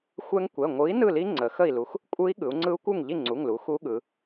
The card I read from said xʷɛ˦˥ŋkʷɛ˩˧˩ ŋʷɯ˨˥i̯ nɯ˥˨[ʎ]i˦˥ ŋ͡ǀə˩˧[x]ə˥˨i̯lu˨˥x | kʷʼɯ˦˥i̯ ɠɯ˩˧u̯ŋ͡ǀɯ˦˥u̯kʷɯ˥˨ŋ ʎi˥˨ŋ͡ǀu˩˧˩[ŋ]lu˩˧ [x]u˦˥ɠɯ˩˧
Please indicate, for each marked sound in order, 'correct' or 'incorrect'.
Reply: incorrect: l, correct, correct, correct

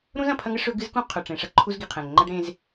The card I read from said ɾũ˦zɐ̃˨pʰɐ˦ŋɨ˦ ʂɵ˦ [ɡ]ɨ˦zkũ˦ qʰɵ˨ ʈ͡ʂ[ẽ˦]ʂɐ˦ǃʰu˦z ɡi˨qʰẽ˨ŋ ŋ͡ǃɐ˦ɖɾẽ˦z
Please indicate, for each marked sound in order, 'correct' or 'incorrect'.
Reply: correct, incorrect: ẽ˨

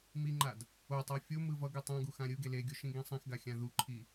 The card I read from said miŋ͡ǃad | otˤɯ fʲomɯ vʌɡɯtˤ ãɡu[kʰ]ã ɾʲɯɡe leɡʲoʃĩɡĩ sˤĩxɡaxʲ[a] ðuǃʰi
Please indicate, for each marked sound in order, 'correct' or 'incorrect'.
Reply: incorrect: x, incorrect: ã

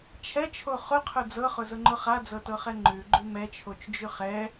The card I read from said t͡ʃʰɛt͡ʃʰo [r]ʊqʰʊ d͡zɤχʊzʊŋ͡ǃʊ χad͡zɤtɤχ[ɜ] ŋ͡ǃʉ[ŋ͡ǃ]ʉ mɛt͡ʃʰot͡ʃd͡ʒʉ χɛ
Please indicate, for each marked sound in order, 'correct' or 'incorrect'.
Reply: incorrect: χ, incorrect: ɛ, incorrect: ɡ͡ǃ

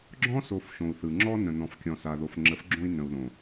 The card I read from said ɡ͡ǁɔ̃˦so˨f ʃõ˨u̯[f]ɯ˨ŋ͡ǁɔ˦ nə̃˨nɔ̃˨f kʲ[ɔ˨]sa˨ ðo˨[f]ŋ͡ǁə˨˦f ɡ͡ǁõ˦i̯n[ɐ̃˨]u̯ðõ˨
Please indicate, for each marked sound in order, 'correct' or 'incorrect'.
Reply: incorrect: θ, incorrect: ɔ̃˨, correct, incorrect: ə̃˨

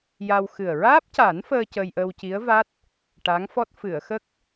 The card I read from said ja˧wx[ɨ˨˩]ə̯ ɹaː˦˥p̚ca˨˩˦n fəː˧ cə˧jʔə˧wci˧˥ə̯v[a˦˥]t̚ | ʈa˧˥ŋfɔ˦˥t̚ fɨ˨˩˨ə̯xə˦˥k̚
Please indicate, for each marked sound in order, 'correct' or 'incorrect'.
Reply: correct, correct

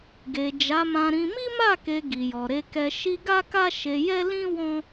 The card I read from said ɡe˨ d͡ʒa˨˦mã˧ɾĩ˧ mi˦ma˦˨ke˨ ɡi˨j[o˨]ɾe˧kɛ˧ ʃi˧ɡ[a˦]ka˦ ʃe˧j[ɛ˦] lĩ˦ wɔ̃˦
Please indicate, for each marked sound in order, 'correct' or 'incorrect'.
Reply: incorrect: ɔ˨, correct, correct

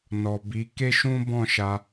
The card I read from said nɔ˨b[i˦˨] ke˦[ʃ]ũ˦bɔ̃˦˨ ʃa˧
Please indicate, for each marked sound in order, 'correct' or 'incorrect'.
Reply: incorrect: i˨˦, correct

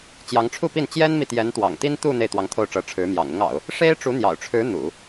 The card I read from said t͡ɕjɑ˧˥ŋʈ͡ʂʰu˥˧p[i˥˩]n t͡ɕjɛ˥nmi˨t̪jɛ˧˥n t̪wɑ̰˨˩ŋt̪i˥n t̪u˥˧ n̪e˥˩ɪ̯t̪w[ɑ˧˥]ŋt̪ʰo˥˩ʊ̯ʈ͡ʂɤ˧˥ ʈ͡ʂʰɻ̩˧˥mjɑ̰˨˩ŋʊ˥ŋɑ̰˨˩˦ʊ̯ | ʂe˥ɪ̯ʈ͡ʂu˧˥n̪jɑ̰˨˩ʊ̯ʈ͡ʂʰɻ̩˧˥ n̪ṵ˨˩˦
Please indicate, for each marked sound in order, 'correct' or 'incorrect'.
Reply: correct, correct

